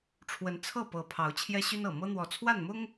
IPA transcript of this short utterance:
ʈ͡ʂʰ w ə˨˦ n t͡sʰ ɤ˥˨ p ɤ˨˦ pʰ ɑ˨˦ ʊ̯ t͡ɕʰ j ɛ˦ ɕ y˦ n ɤ˨˩ m ɤ˦ n̪ w ɔ˨˦ t͡sʰ w a˥˨ n m ʊ˦ ŋ

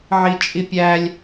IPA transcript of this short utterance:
ʕ i t͡ʃʼ i pʲ æ lʲ

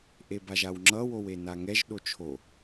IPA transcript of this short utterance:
ʔ e b a ʒ a w ŋ͡ǁ ʌ w o w e n a ŋ ɛ ʒ ɗ o t͡ʃʰ o

